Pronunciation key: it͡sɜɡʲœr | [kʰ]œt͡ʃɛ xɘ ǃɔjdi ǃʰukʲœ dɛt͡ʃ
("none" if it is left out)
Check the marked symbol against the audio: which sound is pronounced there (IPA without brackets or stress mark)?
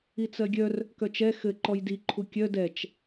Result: k